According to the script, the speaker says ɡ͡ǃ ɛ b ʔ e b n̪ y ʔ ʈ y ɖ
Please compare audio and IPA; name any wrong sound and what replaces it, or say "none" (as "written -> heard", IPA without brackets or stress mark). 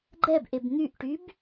ɖ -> b